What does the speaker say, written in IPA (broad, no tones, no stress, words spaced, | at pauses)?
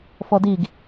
fɔdiɡ